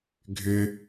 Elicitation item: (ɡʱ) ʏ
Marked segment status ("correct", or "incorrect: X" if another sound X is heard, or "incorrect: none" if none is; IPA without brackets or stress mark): correct